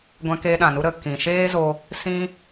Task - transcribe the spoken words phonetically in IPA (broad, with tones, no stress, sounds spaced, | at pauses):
ɡʷ ɛ̃˧ k e˧ ɗ ã˨ n u˧ ɾ ə˨ k ĩ˨ ʃ eː˦ z o˧ | s ĩ˧